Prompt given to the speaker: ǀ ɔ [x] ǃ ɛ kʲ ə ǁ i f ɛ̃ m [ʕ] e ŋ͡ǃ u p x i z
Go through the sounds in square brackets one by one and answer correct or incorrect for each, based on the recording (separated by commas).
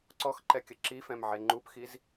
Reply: correct, correct